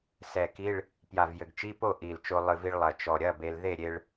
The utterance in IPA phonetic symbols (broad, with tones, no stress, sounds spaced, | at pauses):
s ɛ˨˩ k i˧˥˧ ɭ | p j a˨˩ v j ɘ˨˩ ɡ t͡ʃ i˧˥˧ p o˥˨ ʔ i˨˩ l t͡ʃ o˧ lˠ ɨ˨˩ v i˧ ɭ lˠ ɐ˨˩ t͡ʃ ɔ˨˩ ɾʲ ɐ˧˥˧ b e˧ l ð e˥˨ ɾʲ e˧ ɭ